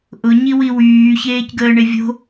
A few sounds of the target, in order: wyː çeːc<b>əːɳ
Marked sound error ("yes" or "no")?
yes